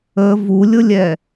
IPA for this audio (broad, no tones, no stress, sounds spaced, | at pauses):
ə v u lʲ ʊ lʲ ɛ